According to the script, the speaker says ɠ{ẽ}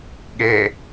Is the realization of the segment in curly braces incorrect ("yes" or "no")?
yes